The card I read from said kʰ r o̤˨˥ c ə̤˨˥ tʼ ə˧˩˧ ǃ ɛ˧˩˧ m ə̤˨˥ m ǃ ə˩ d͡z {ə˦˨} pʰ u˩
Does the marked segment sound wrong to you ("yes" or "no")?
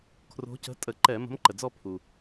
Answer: yes